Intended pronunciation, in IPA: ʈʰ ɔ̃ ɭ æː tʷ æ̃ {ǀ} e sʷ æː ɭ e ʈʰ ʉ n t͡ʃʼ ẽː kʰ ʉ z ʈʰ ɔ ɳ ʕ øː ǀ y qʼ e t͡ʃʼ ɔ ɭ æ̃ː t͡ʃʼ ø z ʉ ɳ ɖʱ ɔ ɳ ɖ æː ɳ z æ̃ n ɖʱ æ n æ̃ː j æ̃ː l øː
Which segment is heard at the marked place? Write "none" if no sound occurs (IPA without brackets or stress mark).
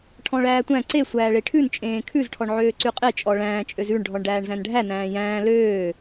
ǀ